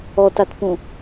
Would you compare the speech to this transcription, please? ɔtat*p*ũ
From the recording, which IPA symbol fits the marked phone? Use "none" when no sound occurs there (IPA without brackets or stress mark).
p